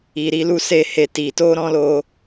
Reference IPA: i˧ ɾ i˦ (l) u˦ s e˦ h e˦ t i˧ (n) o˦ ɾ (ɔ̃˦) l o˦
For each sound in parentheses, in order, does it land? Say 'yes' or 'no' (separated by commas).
yes, no, yes